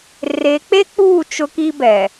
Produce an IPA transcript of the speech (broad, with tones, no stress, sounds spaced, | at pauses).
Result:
r e˨˦ k͡p e˦ k͡p uː˦˨ t͡ʃ ʊ˦ k i˦ b ɛ˨